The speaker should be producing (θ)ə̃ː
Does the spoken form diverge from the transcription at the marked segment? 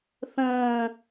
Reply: no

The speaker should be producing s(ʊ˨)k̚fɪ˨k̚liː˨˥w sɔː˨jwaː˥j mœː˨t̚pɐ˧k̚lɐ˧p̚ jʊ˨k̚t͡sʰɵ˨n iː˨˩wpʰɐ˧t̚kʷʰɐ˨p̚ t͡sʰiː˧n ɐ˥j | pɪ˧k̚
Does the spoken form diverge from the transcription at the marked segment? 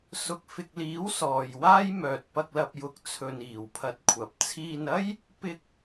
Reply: no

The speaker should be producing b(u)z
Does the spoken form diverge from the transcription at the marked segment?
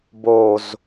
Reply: yes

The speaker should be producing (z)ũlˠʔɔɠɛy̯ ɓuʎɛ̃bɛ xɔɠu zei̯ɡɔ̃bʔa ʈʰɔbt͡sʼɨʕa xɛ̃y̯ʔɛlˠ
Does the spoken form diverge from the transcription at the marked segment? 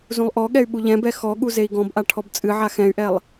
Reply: no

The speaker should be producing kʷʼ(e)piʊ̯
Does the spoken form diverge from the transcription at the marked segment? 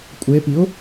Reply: no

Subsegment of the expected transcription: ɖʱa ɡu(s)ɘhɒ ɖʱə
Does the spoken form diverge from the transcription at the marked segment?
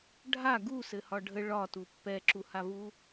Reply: no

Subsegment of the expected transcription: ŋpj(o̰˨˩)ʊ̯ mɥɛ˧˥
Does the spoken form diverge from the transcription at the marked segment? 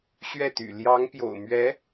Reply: no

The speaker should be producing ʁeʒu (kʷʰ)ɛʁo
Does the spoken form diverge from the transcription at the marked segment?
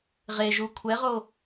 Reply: no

